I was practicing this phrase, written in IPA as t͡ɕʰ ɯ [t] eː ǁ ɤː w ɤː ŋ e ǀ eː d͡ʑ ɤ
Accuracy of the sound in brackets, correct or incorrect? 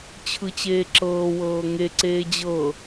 incorrect